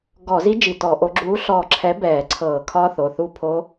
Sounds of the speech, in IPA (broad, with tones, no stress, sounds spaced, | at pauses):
ɡ ɔ˧˩˧ z i˦˥ d͡ʒ i˧˩ t ɔ˧˩˧ ʔ o˨˥ ɡ͡ǁ uː˨˥ ɬ ɔː˧˩ ǁʰ ɛ˨˥ b ɛː˧˩˧ ǀʰ ɤː˧˩˧ kʰ ɒː˦˥ θ o˩˧˩ θ u˥˨ pʰ o˦˥